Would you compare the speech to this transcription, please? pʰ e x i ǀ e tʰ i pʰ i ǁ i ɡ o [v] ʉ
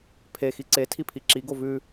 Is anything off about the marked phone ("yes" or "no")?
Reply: no